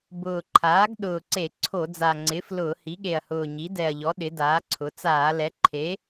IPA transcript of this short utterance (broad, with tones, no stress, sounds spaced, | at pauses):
b ʊː˨˩ ǃʰ aː˩˥ ɡ ɗ ʊː˨˩ ǀ e˧˩˧ ǀʰ o˧˩˧ d͡z a˨˩ ŋ͡ǀ ɪː˩˥ f l ʊː˧˩˧ h i˩˥ ɠ e˨˩ ɐ̯ h ʊː˨˩ ɲ i˩˥ d ɛ˨˩ ɐ̯ ʎ ɔ˩˥ ɗ ɪ˩˥ d aː˩˥ ǀʰ ʊ˩˥ t͡s aː˧˩˧ l ɛ˩˥ ǃʰ e˩˥